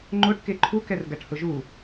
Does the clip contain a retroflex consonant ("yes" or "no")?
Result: yes